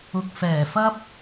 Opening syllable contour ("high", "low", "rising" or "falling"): low